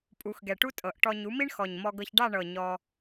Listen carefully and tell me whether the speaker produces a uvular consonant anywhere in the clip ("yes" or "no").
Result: no